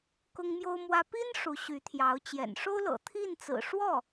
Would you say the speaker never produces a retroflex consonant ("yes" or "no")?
no